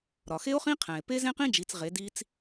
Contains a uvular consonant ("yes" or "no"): yes